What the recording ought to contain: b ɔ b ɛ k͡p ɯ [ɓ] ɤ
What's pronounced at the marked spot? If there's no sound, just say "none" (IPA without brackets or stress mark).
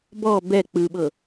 ɓ